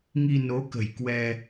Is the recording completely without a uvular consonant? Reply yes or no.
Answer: yes